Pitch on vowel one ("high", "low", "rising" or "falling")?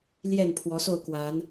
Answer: falling